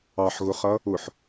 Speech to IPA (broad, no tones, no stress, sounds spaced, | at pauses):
ɑ ħ ɣ ʊ χ ʌ | ʊ ħ